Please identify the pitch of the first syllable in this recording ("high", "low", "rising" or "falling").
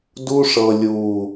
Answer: high